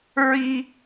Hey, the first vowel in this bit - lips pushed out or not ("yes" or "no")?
no